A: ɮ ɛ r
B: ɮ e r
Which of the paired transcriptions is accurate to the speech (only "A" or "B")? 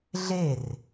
B